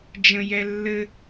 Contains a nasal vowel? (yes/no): yes